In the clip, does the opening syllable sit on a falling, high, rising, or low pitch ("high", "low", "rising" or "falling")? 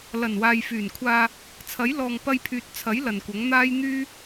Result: low